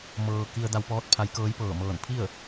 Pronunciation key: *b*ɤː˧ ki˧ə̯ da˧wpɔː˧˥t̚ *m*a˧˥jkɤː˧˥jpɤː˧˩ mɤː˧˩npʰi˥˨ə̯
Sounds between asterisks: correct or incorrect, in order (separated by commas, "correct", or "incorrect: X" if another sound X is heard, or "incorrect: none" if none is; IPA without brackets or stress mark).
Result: incorrect: m, incorrect: pʰ